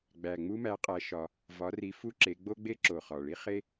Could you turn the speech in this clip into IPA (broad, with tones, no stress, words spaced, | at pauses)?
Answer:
ɡ͡bæ˨˩ŋ͡mu˥mæ˨˦ qʼæ˨˦ʃɒ˨˩ | vɒ˨˦ri˨˦ fu˥ǁe˨˦ ɡ͡bo˥ɡ͡be˥ ǁo˨˩χɒ˨˩ ɭi˥χe˥